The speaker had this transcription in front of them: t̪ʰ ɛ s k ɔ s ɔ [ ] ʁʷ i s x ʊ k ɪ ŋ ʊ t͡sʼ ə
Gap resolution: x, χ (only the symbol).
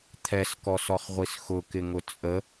χ